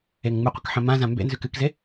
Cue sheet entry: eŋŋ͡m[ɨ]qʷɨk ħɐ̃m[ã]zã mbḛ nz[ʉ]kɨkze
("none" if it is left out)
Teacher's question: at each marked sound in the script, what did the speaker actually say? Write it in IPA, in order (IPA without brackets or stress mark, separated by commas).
ɨ, ã, ʉ